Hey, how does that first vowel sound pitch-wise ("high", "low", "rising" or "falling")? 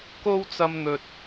high